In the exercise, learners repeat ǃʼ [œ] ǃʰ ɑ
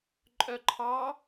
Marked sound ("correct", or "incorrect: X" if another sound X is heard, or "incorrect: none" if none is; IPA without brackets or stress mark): correct